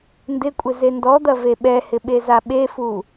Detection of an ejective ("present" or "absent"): present